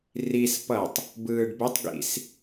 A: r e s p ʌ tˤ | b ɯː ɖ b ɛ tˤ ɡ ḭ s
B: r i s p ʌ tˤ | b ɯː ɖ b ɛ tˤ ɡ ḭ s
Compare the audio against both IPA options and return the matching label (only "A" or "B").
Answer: B